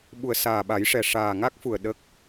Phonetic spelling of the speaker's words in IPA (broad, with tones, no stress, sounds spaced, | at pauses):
ɓ u˨˩ ə̯ s aː˨˩ ɓ a˨˩˦ j ʂ ɛ˨˩ ʂ aː˨˩ ŋ a˦˥ k̚ f u˨˩ ə̯ ɗ ə˦˥ k̚